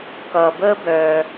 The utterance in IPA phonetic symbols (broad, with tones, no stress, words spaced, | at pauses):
kʌː˩bəː˥bœː˩